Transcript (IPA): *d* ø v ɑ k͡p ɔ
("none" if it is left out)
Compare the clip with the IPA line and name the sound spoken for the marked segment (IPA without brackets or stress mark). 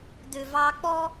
d